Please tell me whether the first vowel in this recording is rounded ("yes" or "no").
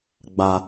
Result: no